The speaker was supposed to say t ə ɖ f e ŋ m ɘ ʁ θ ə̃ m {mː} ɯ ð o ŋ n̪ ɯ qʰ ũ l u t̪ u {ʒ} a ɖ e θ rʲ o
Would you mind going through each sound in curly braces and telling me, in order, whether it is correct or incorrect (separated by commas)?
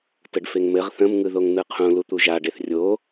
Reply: incorrect, correct